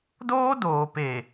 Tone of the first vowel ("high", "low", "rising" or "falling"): high